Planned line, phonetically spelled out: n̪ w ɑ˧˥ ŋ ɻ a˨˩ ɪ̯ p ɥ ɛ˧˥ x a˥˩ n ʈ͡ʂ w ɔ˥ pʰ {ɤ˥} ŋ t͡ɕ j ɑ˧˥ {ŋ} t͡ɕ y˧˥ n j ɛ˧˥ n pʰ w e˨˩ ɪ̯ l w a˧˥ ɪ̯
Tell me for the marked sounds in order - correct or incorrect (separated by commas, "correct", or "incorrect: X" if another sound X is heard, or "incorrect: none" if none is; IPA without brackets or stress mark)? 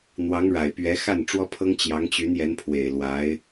correct, correct